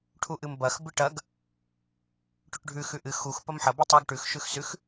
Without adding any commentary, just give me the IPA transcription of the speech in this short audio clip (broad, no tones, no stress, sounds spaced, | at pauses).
ʈʰ u ʔ ɨ m b ɐ x b ɨ ʈ ɐ ɡ | ʈ ʉ ʈ ɖʱ ʉ x ʉ ʔ ɨ x u x p ɐ m ħ ɐ b ʉ tˤ u ɡ ʈ ʉ x ʃ ʉ x s ʉ x